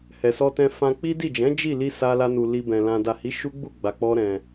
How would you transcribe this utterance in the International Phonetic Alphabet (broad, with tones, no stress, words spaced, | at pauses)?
hɛ˨sɔ˧ tɛ̃˧fã˧ k͡pi˦di˦˨ d͡ʒɛ̃˨˦ d͡ʒi˦˨li˧ sa˧la˧nu˨ li˧bɛ̃˨ lã˨da˨hi˨˦ ʃu˦ɡ͡bu˦˨ɡ͡ba˨k͡pɔ˧ ɾɛ̃˨